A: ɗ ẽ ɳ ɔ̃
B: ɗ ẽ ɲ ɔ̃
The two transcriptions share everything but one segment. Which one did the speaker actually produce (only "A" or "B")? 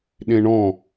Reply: A